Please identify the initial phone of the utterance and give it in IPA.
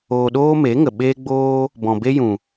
oː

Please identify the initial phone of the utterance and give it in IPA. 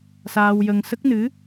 s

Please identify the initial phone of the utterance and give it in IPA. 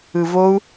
ɯ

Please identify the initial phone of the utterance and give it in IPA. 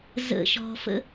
z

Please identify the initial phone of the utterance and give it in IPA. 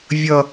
vʲ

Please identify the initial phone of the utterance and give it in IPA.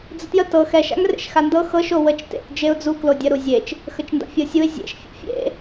d͡z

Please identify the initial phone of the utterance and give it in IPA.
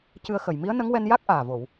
c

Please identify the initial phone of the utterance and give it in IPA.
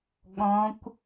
ɠ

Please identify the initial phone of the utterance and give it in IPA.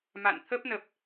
m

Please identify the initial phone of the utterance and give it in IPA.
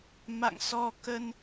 m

